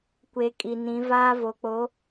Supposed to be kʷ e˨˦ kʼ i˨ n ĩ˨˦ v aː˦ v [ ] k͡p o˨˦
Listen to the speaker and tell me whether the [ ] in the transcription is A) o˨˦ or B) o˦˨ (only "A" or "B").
A